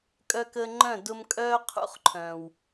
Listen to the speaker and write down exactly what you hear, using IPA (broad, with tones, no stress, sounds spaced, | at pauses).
kʼ œ˧ k əː˧ ŋ͡ǃ œ̃˦˨ d ʊ˧ m kʼ œː˦ qʰ ṵ˦ χ ǃʰ œ̃˨ w